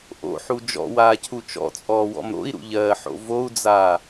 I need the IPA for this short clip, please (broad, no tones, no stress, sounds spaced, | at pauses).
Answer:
ʔ o̰ ħ u d͡ʒ ɔ̰ w aː cʰ u t͡ʃ ɔ̰ t͡sʼ ɔː w ɔ̰ m ɾ o̰ i̯ ɾ ṵ ʎ ɜː ħ o̰ v o u̯ d͡z aː